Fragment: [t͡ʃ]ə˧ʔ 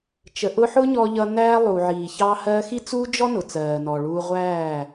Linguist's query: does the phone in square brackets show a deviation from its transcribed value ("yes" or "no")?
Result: no